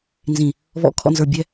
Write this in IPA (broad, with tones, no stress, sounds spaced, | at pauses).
n z ĩ˨ | β ɔ̰˨˦ kʰ ɔ̰˨ n z ə˞˨ bʲ ɛ˦